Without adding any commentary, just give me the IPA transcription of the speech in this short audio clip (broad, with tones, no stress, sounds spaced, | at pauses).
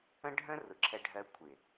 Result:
ə̃˦ ɖʱ ə̃˦ r ʊ˨ ǁʰ ɛ˧ ɖʱ ɜ˧ kʷʰ ɪ˨